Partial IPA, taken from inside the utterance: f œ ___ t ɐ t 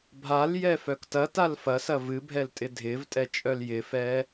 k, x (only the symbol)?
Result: k